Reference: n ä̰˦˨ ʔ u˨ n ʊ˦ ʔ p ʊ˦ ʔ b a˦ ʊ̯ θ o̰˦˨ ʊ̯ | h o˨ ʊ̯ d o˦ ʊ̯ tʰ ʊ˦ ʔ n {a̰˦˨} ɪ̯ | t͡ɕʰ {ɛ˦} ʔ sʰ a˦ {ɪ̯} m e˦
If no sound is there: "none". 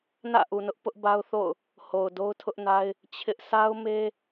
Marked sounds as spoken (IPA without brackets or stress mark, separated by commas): a˦, ɪ˦, ʊ̯